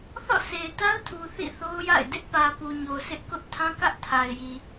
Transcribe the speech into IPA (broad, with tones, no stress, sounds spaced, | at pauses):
θ ɔ̰˦˨ sʰ e˨ ɪ̯ t a˦ ʊ̯ tʰ u˨ θ ḭ˦˨ θ o˦ ʊ̯ j a̰˦˨ ɪ̯ d ɪ˦ ʔ p ä˨ p u˨ ɲ o˨ s ɪ˦ ʔ k ʊ˦ ʔ tʰ ã˦ k ä˦ ʔ tʰ a˨ ɪ̯ j i˨